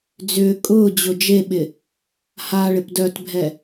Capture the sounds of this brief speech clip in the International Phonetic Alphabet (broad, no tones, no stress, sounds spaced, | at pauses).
d͡z ʏː kʼ ʊː d͡ʑ ʊ d͡ʒ e ɓ ɪ | h a ɭ ɪ p d œ t bʱ ɛ